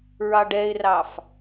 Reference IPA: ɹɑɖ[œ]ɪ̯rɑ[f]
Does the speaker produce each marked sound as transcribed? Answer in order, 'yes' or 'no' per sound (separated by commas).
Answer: no, yes